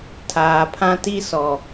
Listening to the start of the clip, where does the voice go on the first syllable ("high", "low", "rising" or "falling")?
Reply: low